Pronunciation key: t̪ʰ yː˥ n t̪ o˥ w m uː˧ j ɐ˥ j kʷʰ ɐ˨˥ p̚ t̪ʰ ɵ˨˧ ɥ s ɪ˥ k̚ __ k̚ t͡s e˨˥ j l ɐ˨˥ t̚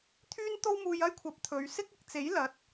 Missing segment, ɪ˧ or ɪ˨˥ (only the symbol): ɪ˨˥